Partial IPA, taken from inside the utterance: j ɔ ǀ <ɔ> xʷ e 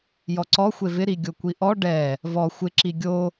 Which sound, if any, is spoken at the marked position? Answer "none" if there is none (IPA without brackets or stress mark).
ɔ